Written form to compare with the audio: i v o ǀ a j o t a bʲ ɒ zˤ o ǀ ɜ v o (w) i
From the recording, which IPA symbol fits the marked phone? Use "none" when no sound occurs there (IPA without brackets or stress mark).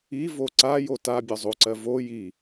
j